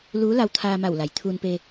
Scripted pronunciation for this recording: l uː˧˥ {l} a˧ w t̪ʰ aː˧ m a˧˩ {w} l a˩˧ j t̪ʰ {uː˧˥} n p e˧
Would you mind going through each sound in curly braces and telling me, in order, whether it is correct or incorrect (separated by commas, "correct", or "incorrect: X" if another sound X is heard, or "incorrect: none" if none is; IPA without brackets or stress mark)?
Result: correct, correct, incorrect: uː˧